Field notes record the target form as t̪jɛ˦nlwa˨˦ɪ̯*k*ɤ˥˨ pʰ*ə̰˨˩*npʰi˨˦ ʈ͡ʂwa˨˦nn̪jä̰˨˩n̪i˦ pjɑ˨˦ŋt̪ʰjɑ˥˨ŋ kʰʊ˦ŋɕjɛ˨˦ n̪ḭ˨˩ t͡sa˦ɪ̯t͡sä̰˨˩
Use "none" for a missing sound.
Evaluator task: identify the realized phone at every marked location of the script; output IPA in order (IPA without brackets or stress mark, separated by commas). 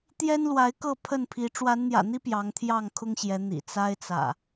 k, ə˥˨